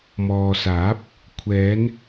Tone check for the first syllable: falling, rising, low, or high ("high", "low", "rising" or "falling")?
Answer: low